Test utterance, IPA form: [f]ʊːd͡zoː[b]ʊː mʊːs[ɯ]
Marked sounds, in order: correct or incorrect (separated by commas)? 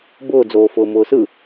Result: incorrect, incorrect, correct